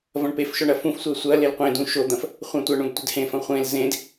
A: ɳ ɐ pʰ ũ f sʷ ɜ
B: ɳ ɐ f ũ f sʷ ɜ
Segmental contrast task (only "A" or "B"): B